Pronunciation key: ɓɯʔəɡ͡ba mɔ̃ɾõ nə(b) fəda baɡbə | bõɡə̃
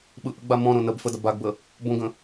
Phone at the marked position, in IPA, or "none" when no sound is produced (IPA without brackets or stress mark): b